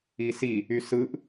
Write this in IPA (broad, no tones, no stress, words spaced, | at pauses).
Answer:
isi | ysɯʔ